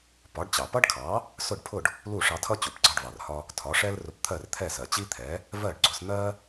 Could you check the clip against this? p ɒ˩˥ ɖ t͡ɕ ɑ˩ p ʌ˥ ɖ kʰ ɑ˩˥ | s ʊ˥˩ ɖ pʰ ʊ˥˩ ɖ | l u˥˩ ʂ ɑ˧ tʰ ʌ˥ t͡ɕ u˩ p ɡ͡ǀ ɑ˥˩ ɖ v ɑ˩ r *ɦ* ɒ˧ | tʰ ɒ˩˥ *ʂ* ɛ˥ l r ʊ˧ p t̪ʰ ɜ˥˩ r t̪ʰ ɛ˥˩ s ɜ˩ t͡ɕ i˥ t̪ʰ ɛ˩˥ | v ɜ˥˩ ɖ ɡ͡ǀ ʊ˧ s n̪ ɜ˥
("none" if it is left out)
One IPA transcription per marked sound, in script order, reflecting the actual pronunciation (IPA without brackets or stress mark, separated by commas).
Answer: h, ʂ